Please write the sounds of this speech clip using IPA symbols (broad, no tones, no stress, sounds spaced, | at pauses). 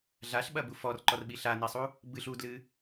ɮ a ɬ ɓ ɐ b u f ɔ r ǃ ɔ r ɓ i ɬ a n i sˤ u | b ɨ ɬ u d l ɨ